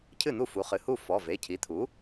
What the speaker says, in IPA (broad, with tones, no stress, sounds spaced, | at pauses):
cʰ ɨ˥˩ n̪ u˥˩ f u˩˥ χ ɨ˩˧˩ h u˥˩ f ɔ˩˧˩ v e˩˧˩ cʰ i˩˥ t̪ʰ u˩˥